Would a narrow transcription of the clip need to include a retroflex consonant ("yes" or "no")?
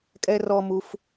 no